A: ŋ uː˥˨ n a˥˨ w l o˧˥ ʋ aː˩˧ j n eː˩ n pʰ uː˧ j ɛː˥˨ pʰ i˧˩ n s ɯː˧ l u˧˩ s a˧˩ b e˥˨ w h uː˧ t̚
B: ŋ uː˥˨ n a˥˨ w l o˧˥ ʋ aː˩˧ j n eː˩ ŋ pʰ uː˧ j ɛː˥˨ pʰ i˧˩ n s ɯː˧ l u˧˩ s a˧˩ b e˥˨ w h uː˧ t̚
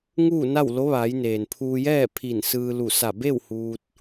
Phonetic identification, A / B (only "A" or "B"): A